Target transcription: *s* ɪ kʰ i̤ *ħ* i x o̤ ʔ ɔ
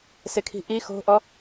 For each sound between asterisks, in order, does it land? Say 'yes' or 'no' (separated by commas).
yes, no